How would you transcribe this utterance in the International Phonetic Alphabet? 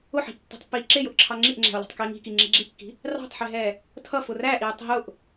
ʊ ħ i̤ ʔ tː ɛ̤ tˤ pː iː ǁ ɪ j ʊ ʔ ǁʰ ɑ ŋ͡ǁ i ʔ ŋ͡ǁ æ̤ o̯ l ɛ̤ tˤ k iː ŋ i̤ k i ŋ͡ǁ i ɡ͡ǁ i kː i̤ | r ɑ̤ tˤ ħ ɪ ɦ ɛː | tʰ ʌ f ʊ r æ ʔ iː tˤ ɦ ʊ ʔ

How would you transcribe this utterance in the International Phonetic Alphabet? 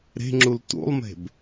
ɾ e̤ ŋ͡ǁ u l t ṵ lˠ m e̤ b

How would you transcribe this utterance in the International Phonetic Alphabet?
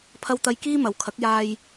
pʰ ɐ˧ w t̪ ɐ˧ j k iː˥ m ɐ˨ w kʰ ɐ˨˥ k̚ j aː˧ j

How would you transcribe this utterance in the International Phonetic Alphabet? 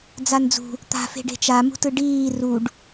d͡z a n d͡z ṳ | t̪ a̤ f e̤ ɖ e̤ t͡ʃ a m ṳ t ɯ ɖ iː r u ɖ

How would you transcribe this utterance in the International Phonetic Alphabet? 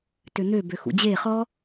t ø n̪ ø b ø x ṵ d͡ʑ e χ ɔ

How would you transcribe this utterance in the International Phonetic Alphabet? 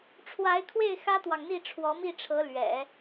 ʈ͡ʂʰ w a˧˥ ɪ̯ kʰ w e˥˩ ɪ̯ x ä˥ t̪ w ɑ˨ ŋ n̪ i˥˩ ʈ͡ʂʰ w ɔ˧˥ m i˥˩ ʈ͡ʂʰ ɤ˧˥ l ɥ ɛ̰˨˩˦

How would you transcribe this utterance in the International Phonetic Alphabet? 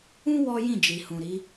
ũ˦ w ɔ˦ j ĩ˦˨ d͡ʒ i˨ h ũ˨ ɾ i˨˦

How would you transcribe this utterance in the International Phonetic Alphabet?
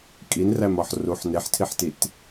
kʼ i n r æ m ɒ ħ r u ħ n e ħ tʰ i ħ t i t

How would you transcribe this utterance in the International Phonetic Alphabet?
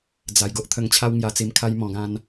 d͡z a˨˩ j ɡ o˦ ʔ t̪ʰ ə˧ ŋ t͡ɕʰ a˦ w ŋ j a˧ t͡s i˧ m kʰ a˦ j m ɔ̃˧ ɡ ã˦ n

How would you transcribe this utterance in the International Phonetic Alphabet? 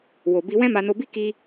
w o˨ b i˧ w ɛ̃˦ m a˧ n o˧ b i˦ k i˦

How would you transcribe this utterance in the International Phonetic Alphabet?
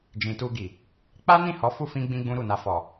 d͡ʒ ĩ˨ t u˧ ɡ i˨ | k͡p a˦ n ĩ˦˨ h ɔ˨˦ f u˦˨ f ĩ˧ ɡ͡b ĩ˧ ɡ͡b ũ˦ ɾ u˦˨ n a˧ f ɔ˨

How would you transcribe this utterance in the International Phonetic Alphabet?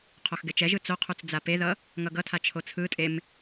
qʰ o x ɡ ɛ t͡ʃ ɛ ʒ ɯ t͡s o qʰ u t͡s d͡z a p e ð ʌ | ŋ ʌ ɡ ʌ tʰ a t͡ʃʰ o t͡sʰ ɯ tʼ e m

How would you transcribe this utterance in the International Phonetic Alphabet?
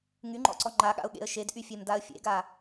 ŋ y ŋ͡ǃ ɔ̰ ǀ ɔ ŋ͡ǃ a ɠ a̰ ʊ̯ ɠ ḛ ə̯ ʃ e d ʔ y fʲ e m d a ə̯ fʲ ḛ ɡ a

